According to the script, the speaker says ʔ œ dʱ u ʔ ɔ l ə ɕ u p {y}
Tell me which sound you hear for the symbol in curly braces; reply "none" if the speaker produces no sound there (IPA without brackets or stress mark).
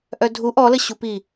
i